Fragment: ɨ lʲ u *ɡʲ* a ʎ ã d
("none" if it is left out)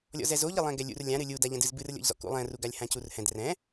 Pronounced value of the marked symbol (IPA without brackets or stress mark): d